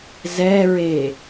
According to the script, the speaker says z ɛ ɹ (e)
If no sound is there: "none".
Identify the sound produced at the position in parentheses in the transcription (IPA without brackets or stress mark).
e